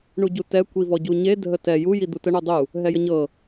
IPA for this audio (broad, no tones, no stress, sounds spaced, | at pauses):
ɳ u ɟ u t ɛ kʷ i v ɔ ɟ u ɲ e dʱ ə t ɛ j u j i d̪ u t ə ɳ u dˤ u | ɦ ɛ j ə ɲ ɤ